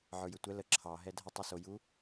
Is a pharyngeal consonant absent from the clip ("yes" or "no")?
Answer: no